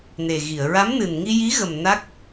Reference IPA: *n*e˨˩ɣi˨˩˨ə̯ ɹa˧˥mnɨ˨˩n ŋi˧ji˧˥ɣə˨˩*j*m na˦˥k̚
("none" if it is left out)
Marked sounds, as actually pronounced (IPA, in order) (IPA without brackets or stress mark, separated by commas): n, none